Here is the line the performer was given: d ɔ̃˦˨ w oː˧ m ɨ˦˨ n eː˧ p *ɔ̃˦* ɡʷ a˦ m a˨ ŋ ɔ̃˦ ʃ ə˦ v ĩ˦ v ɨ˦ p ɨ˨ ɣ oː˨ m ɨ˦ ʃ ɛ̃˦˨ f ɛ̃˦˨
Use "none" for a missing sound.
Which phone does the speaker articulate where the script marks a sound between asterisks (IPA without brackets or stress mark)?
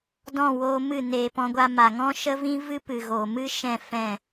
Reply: ɔ̃˦